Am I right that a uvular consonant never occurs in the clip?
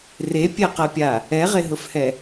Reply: no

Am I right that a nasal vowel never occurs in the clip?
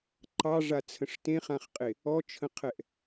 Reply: no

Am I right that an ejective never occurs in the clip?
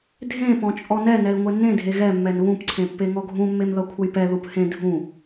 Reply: no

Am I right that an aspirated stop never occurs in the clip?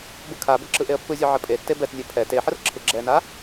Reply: no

